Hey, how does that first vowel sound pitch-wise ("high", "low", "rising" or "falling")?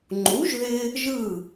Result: rising